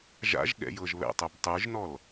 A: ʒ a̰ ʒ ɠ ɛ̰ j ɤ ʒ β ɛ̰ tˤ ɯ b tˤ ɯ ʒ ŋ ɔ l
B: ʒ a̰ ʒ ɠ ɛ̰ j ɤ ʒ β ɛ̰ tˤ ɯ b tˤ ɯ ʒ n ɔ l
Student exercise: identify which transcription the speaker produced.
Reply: B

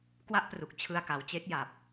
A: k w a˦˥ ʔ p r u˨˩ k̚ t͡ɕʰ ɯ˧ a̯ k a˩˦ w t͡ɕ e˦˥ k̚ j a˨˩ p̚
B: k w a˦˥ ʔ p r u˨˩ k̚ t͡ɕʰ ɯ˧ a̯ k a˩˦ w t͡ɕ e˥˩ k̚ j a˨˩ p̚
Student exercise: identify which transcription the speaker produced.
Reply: A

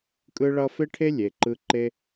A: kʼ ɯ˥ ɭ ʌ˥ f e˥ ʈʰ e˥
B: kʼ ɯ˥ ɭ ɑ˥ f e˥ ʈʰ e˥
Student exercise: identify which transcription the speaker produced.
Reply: A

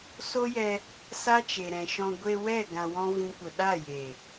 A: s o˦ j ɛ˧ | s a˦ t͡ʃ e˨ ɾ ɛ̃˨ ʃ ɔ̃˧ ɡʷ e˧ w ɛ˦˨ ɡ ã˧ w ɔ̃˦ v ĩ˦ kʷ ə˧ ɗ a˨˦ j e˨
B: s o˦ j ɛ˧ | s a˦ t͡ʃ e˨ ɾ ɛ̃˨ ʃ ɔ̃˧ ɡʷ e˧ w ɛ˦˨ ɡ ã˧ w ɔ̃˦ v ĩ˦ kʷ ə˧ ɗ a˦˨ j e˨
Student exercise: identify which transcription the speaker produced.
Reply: B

